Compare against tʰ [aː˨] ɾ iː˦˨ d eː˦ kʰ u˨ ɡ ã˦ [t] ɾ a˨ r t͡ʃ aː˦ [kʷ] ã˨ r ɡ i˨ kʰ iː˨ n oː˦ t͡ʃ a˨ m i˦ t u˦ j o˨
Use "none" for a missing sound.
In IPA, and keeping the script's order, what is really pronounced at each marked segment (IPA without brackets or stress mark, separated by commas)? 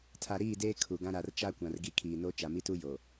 a˨, none, kʷ